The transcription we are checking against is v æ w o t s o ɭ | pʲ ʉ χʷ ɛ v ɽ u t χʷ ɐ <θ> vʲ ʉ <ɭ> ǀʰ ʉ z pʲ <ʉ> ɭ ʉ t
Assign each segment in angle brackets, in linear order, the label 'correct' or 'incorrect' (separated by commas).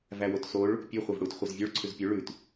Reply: incorrect, correct, correct